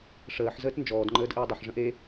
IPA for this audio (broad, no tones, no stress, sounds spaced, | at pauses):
ʂ əː ħ z əː t n d͡ʒ ɔː d ŋ͡ǃ əː d ʔ əː dˤ ʏ ħ ʐ ə̃ ʔ e